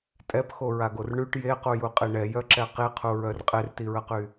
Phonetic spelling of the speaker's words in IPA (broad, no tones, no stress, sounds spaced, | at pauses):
tʼ ɛ p x o ɹ a ɡ o r ɳ y ʈ j e q u j u qʼ i ɳ ɛ j œ ǁ ɛ q i qʰ u ɹ œ r qʼ e r t i ɹ ə q y